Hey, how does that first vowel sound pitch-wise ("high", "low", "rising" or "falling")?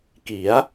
rising